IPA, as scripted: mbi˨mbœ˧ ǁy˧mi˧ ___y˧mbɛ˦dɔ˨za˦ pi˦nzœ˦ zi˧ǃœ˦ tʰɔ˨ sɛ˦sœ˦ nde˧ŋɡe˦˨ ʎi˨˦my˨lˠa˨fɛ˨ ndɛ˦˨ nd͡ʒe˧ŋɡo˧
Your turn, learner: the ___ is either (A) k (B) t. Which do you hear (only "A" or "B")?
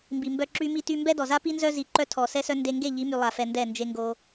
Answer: B